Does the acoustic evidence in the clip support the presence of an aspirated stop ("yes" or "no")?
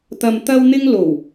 no